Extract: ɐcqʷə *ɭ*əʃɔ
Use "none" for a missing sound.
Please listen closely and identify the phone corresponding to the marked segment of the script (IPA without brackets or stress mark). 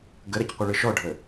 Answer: ɭ